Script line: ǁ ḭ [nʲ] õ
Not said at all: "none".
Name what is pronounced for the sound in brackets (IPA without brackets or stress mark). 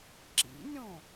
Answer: nʲ